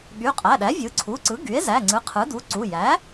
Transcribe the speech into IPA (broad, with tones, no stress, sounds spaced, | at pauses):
ɠ y˩˧˩ qʼ æ˩˧˩ ɗ æ˩˥ vʲ ɯ˩˥ ǀʰ u˩˧˩ ǀ ɯ˩˥ ɡ y˩˥ e̯ z æ˩˧˩ ŋ͡ǀ ɯ˩˥ qʰ ɯ˩˥ d u˩˧˩ ǀ u˩˧˩ j æ˩˥